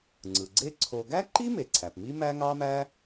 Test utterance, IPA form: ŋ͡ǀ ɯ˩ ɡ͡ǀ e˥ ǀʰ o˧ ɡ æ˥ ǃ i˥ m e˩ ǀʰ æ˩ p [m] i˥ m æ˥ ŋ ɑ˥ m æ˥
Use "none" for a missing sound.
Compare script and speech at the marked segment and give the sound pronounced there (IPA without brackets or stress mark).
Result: m